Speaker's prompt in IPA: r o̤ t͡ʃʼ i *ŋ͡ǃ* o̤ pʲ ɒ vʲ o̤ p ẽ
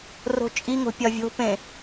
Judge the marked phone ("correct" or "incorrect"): incorrect